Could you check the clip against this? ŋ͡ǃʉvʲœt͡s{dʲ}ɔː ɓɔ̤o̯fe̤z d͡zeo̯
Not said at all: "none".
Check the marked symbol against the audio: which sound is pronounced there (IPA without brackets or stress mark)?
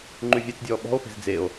dʲ